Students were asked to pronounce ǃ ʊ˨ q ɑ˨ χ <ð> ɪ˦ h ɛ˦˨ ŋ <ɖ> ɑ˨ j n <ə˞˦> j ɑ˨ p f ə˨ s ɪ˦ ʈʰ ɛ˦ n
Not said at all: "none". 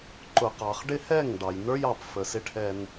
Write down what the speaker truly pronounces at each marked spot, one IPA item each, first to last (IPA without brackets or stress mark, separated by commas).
ɖ, ɖ, ə˞˦